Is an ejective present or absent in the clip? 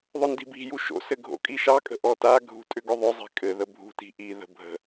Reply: present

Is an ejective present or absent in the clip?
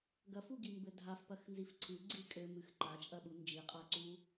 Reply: present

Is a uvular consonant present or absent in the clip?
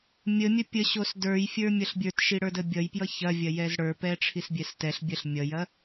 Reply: absent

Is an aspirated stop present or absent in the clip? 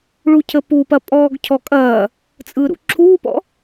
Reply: present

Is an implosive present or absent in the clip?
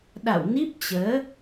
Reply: present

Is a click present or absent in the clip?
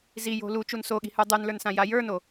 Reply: absent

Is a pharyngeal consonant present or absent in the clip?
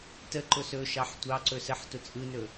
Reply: present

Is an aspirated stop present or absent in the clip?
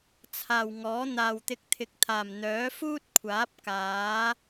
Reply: present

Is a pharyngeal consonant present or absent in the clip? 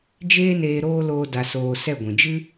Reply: absent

